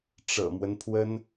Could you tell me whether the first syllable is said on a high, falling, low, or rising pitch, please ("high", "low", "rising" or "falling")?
low